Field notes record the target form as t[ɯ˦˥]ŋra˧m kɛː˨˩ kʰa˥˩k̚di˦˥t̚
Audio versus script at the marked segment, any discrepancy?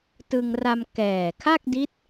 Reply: yes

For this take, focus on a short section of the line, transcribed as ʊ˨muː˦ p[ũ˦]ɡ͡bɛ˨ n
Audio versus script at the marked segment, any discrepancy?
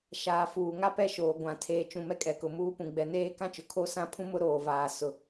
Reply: yes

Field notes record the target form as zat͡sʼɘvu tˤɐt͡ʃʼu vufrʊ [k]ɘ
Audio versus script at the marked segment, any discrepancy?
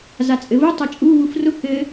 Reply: no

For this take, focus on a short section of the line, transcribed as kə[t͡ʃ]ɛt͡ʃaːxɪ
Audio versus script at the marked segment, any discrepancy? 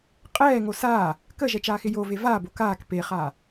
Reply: yes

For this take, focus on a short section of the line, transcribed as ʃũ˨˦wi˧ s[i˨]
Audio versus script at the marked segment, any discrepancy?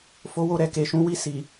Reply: no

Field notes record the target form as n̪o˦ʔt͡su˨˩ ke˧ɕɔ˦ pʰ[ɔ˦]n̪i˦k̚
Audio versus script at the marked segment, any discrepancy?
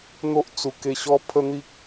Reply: yes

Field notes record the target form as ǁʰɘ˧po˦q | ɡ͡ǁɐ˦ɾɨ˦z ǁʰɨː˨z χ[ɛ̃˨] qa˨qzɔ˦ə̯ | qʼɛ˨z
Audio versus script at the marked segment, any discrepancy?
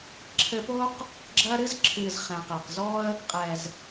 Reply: no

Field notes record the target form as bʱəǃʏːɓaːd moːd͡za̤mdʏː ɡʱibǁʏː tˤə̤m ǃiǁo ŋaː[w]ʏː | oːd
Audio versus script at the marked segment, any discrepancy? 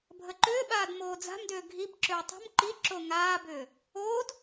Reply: yes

